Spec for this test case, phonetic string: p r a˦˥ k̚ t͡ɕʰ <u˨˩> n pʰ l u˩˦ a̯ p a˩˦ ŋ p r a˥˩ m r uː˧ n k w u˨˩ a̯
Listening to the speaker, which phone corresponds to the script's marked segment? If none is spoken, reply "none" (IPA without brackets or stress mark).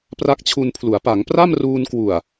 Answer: u˧